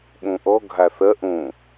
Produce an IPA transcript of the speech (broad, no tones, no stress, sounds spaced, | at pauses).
ɓ õ ʔ ɔ ɡʱ a θ ɐ ʔ õ